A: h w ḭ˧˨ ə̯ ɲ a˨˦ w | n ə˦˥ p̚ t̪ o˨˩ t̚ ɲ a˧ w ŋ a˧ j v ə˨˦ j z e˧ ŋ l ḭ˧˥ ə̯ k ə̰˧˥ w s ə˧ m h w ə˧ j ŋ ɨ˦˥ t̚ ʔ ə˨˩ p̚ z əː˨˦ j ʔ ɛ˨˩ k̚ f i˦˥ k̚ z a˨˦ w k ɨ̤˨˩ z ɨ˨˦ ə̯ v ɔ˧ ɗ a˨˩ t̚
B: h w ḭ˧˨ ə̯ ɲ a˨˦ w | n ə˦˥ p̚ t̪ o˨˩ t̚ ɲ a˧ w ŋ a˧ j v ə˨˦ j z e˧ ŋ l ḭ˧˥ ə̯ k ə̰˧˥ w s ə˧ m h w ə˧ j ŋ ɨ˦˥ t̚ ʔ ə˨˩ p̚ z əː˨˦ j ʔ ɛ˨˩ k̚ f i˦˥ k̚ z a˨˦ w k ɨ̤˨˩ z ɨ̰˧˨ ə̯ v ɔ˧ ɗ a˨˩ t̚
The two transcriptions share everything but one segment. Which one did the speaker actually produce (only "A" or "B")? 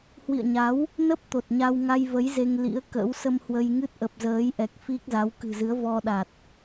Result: A